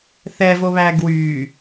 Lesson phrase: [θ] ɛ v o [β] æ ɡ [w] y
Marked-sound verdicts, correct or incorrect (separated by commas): correct, correct, correct